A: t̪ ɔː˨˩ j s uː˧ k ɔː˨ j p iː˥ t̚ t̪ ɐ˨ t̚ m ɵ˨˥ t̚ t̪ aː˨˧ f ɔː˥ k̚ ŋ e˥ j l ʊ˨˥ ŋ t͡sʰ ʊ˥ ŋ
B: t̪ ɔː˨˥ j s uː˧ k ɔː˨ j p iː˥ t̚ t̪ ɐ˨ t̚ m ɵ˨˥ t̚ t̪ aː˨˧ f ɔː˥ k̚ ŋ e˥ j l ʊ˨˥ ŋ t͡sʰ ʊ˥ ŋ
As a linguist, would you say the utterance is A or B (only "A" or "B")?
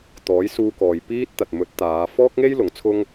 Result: B